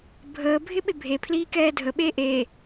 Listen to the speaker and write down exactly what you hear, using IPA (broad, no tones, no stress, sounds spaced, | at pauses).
bʱ əː bʱ ɪ ɓ ɪ bʱ e pʰ l iː k ɛː dʱ ə ɓ eː ʔ eː